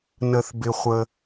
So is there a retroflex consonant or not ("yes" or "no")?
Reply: no